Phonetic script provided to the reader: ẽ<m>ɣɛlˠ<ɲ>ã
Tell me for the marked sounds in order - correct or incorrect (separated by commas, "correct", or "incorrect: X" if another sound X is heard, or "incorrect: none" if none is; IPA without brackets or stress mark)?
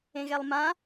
incorrect: none, incorrect: m